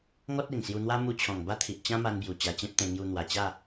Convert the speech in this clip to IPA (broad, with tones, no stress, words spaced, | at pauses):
ŋɔ˦t̚e˨˩ŋsju˧n̪wa˦ mu˧t͡ɕʰɔ̃˨˩ŋba˥˧t̪ʰi˨ʔ t͡ɕã˦ma˧nbju˨˩ t͡ɕa˧t͡ɕẽ˦p̚t̪ẽ˧ ŋju˧n̪wa˨˩t͡ɕa˥˧